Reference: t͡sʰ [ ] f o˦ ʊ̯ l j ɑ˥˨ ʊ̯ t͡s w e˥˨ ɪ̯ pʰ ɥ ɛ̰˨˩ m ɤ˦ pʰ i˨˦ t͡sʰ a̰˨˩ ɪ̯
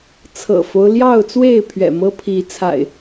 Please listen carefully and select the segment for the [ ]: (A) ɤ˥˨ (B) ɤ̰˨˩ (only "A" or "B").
B